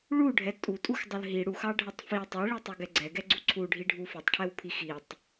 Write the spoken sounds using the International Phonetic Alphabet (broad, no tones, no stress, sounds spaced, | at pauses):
ɭ u ɖʱ ɛ tʼ u tʼ u x dˤ ə l ɦ i ɽ u x ɑ ɖʱ ə tˤ f i tˤ ɛ ɭ i tˤ u ɡ ɛ ɡ͡ǀ ɛ ɡ ɛ ɡ͡ǀ u ǀʰ u ɖʱ i ɖʱ u f i tˤ ʈʰ ɛ w pʰ i x i tˤ